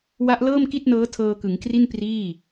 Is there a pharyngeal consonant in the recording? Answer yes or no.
no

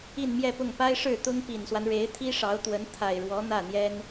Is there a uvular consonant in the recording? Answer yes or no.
no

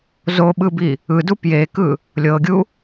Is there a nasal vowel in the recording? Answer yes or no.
no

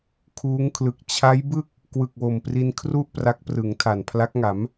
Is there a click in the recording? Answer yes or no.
no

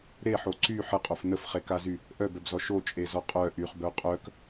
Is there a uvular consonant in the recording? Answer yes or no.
yes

